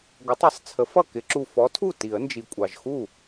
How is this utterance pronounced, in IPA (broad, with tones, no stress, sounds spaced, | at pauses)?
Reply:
ɡʷ ʌ˨˥ tˤ ʌ˨˥ sˤ t͡sʰ ə˨˥ f ʌ˥˩ k ɪ˨˩˦ ǁ u˨˩ f ɔ˨˥ tʰ u˥˩ t i˨˩˦ ə̯ n d͡ʒ i˨˩ kʷʼ ɑ˨˩ ʒ x u˥˩